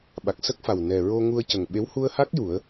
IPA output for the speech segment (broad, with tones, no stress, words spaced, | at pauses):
ɓa˨˩k̚sə˦˥k̚fa˨˩w nɛ˨˩ɹo˧ ŋu˧ə̯cə˨˩ŋɓe˧˥w hu˧ə̯ha˦˥k̚ ju˨˩˦ə̯